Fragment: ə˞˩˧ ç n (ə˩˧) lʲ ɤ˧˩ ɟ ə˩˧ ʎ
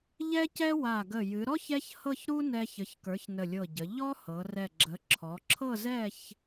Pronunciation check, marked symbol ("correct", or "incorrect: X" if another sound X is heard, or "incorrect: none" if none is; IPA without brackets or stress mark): incorrect: ə˧˩